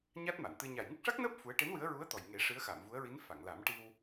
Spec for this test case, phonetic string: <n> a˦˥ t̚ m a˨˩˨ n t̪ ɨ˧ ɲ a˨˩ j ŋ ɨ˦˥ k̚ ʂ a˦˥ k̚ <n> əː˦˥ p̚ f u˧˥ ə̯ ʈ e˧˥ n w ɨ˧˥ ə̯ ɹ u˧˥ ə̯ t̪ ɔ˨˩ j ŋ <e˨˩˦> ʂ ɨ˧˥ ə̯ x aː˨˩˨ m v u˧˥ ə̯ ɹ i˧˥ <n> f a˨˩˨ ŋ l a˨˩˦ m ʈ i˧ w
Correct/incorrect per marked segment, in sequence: incorrect, correct, correct, correct

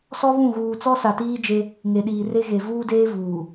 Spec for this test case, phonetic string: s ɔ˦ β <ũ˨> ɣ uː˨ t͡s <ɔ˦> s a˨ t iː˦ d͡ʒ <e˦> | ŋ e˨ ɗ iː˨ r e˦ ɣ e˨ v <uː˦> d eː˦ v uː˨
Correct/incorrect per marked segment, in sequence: incorrect, correct, correct, correct

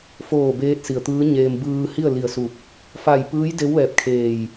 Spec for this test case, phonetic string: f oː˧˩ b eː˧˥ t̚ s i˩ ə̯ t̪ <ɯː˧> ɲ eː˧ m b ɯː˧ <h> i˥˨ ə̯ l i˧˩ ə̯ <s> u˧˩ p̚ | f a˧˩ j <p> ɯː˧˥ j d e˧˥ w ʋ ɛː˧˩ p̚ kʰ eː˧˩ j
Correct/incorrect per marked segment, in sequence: incorrect, correct, correct, correct

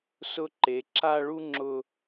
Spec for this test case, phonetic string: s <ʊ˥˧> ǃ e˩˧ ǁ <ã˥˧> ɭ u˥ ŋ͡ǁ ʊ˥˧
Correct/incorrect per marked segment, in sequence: correct, incorrect

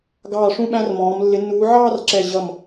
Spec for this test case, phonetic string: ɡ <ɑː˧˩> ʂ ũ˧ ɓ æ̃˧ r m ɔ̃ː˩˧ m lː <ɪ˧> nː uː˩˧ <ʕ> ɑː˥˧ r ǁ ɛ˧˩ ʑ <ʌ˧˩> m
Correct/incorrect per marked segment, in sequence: correct, incorrect, correct, correct

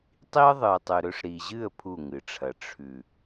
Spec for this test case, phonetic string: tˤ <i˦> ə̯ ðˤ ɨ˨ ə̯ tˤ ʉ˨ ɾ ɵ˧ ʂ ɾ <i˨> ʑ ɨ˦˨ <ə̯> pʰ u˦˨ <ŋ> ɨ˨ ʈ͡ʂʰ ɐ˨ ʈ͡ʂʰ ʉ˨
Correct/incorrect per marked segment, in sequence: correct, correct, correct, correct

